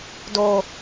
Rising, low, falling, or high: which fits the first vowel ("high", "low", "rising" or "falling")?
high